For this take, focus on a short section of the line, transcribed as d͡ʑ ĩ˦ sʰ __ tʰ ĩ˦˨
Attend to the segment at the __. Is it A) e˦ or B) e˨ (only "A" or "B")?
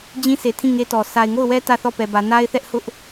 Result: B